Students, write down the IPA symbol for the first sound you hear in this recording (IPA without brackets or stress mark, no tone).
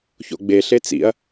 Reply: ç